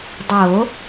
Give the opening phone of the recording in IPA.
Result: dˤ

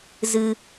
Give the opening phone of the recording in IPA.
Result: z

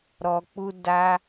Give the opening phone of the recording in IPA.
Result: ɾ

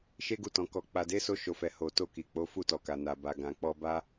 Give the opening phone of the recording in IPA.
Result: ʃ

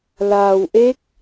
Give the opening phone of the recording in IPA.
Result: l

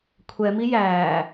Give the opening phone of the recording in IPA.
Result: kʷʰ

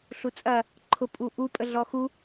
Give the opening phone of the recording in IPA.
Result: ɬ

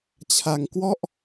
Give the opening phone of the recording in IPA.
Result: t͡ɕʰ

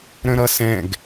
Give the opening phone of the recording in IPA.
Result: ɾ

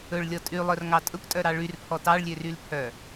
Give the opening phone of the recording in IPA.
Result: ɵ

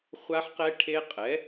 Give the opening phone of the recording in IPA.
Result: χʷ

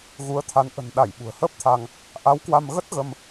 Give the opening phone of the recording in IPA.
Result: ɣ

